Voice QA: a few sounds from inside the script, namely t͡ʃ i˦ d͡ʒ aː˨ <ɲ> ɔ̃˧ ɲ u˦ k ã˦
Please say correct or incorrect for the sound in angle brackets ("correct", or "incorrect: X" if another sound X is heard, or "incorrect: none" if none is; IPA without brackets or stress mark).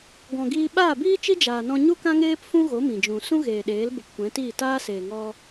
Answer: incorrect: n